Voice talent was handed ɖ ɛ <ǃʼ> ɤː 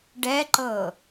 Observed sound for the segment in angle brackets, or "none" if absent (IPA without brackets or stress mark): ǃ